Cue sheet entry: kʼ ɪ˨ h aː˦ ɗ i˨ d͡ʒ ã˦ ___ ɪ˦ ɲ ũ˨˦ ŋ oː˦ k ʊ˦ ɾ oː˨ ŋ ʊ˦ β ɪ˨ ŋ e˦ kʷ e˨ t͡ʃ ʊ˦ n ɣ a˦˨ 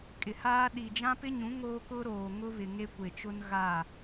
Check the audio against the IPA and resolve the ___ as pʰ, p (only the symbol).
p